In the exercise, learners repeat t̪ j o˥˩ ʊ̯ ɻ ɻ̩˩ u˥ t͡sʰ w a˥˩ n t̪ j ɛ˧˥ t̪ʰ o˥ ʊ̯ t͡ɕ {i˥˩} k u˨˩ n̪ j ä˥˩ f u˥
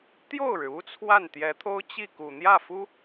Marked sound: correct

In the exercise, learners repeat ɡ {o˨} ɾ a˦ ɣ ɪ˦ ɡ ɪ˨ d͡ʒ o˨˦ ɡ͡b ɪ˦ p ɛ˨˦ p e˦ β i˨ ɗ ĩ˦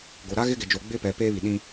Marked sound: correct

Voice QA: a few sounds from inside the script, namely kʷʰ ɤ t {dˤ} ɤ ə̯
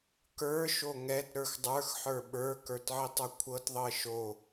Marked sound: incorrect: ðˤ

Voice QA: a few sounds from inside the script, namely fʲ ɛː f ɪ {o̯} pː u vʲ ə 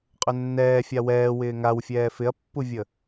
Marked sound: incorrect: ɐ̯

